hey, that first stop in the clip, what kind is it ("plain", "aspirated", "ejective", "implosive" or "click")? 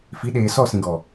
implosive